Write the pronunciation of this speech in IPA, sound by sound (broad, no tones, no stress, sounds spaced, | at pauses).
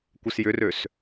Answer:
kʷ ɪ s j ʏ r ø s